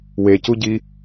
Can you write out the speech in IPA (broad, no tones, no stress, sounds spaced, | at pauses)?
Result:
w e c u ɟ i